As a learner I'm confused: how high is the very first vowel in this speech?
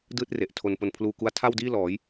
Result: high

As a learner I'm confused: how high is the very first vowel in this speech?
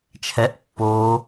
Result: mid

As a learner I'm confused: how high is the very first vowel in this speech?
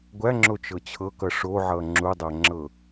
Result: low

